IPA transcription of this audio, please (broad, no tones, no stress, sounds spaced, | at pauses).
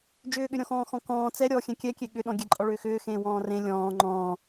d͡ʒ ʏː ɠ ʏ ɾʲ ɔ̃ x ɔ̃ː x ɔ̃ k ɔ̃ː t͡s ɛ ɾʲ ɔ xʲ ɛ̃ kʲ ɛ kʲ e ɠ ʏ ɗ ɔ̃ ɡʲ ɛ ǃʼ ɔ ɭ ʏː x ʏː x ẽː w ɔ̃ː r ẽ lʲ ɔ̃ː ŋ͡ǃ ɔ̃ː